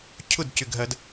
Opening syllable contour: falling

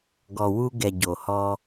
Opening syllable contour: low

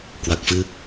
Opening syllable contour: low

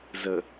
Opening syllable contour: low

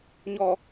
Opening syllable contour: low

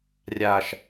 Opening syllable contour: low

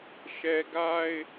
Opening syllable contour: high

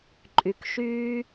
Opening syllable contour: low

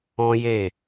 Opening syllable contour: high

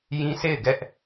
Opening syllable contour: high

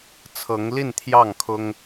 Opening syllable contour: rising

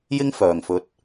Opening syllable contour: high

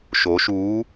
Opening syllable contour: rising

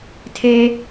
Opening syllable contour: high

